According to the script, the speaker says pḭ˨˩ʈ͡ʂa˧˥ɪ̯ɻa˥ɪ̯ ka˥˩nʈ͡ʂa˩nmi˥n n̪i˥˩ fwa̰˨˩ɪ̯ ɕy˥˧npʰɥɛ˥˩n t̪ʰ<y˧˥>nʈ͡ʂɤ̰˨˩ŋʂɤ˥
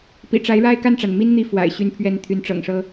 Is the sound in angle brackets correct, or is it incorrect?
correct